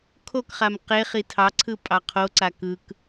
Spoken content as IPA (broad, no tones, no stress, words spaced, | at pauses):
kʰokχam qeχi tʰɑǀʰɯ pʼɑqʰoǀa kɯk